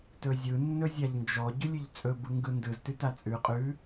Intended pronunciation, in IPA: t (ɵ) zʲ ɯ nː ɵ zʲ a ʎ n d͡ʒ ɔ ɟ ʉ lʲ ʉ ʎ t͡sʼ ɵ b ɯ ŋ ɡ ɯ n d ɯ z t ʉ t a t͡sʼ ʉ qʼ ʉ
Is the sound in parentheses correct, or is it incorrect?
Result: correct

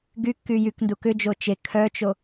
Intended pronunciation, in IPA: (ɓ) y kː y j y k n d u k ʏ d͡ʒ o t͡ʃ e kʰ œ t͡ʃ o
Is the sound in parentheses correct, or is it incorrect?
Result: incorrect: ɡ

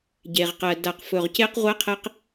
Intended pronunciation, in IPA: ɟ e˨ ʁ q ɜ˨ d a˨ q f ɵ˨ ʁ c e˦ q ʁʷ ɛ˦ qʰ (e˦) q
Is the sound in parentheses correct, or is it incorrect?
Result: incorrect: ɛ˦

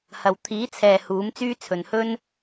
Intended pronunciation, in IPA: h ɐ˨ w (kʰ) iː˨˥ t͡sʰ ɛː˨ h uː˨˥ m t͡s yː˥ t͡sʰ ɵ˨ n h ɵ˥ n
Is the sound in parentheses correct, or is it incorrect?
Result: incorrect: t̪ʰ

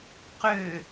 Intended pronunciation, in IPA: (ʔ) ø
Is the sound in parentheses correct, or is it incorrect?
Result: incorrect: q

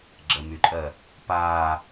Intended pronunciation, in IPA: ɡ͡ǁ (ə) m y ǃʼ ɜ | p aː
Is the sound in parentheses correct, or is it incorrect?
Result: correct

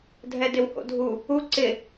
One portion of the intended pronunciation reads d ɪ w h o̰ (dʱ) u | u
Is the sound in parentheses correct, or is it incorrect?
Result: correct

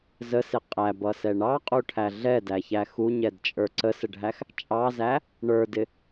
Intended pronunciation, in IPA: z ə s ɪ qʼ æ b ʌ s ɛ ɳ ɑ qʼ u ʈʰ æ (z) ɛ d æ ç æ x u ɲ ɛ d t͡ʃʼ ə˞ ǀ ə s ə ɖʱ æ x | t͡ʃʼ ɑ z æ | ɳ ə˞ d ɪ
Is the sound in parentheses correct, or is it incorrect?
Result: incorrect: ɮ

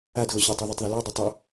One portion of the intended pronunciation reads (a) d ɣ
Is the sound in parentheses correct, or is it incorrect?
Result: correct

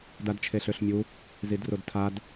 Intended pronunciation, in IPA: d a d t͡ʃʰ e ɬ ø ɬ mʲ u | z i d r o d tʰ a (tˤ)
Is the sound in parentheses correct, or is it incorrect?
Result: incorrect: d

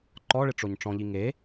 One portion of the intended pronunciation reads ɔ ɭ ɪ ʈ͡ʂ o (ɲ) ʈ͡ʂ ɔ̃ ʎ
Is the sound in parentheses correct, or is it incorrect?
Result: correct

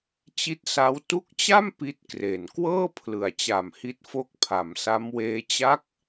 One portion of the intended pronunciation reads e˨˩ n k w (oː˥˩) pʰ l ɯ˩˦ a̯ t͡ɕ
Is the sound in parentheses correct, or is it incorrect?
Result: incorrect: ɤː˥˩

